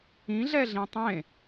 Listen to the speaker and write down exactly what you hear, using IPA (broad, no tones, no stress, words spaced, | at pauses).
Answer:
ĩ ɮɛɮĩtˤẽ